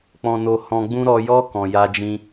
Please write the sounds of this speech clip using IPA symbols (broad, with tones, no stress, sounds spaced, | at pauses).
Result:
k͡p ɔ̃˨ n o˨ h ɔ̃˨ ɡ͡b ũ˧ ɾ ɔ˨ j ɔ˧ k ɔ̃˨ j a˧ d͡ʒ ĩ˦